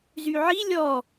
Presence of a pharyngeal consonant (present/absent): present